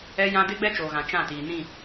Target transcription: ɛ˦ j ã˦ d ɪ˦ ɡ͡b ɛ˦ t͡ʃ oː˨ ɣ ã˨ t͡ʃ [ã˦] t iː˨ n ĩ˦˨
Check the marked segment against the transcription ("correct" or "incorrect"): incorrect